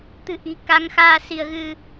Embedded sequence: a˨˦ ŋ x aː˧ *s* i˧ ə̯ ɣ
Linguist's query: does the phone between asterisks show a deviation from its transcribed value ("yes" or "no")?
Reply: no